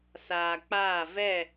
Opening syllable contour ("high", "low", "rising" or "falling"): low